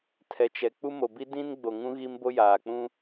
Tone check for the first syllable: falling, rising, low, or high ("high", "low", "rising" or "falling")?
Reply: low